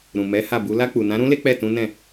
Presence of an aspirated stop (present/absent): absent